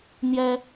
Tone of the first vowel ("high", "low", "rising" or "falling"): high